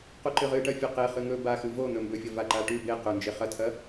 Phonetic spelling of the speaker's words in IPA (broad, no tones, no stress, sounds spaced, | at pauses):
q u ǃ ɨ ʁ ɨ ʈ ɐ fʲ ɵ q e χ ɨ ŋ ɵ b a x ɨ v o n̪ ɵ m b ɵ fʲ ɐ v a ǃ a ʈ ʉ b e q ɵ n d͡ʒ e χ ɐ tʰ ɐ